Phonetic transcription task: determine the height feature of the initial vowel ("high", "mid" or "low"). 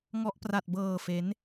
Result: mid